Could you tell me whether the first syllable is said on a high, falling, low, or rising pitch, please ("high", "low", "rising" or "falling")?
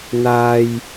high